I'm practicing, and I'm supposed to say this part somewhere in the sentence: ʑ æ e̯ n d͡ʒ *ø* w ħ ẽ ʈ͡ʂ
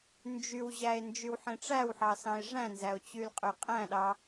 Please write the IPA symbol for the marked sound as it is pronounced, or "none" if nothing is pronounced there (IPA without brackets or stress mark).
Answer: y